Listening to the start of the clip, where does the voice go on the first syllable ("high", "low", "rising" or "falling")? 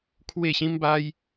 falling